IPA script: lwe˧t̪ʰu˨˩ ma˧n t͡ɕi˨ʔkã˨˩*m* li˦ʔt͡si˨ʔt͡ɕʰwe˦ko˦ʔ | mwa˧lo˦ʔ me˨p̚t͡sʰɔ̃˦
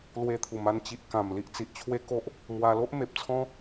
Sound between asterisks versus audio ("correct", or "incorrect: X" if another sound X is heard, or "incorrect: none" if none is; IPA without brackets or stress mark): correct